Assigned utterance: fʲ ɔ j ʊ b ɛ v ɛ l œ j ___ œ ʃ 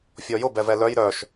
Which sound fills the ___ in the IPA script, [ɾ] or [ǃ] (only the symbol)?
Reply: ɾ